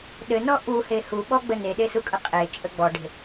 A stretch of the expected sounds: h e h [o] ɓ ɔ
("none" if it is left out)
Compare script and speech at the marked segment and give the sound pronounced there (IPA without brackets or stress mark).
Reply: u